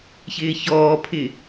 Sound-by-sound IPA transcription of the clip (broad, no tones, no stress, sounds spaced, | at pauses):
ç ɪː ç ɔː pʰ ɪ